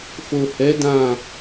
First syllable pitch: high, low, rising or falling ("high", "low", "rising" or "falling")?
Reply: low